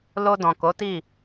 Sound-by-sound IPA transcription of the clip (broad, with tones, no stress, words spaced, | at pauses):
lo˧ dɔ̃˨ko˨˦ti˦˨